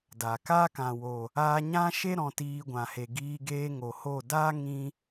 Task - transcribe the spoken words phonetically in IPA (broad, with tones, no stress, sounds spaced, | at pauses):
d a˨ k aː˦ k ã˨ w o˨ | aː˧ ɲ ã˦ ʃ e˦ ɾ ɔ̃˧ t iː˧ ɡʷ ã˨ h e˨ ɡ iː˧ ɡ eː˧ ŋ o˨ h o˦˨ d a˦ ŋ ĩ˧